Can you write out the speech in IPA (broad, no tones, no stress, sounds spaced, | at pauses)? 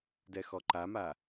d ɛ x ɔ ǃ a m a